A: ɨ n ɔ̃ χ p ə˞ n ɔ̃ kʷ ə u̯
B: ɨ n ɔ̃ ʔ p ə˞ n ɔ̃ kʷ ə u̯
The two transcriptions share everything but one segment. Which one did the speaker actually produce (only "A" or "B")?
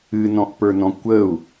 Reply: B